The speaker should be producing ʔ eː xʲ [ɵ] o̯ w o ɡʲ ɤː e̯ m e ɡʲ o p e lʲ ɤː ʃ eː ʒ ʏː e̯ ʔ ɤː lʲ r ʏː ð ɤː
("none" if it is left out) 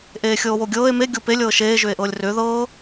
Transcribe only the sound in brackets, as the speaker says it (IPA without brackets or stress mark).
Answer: ɤ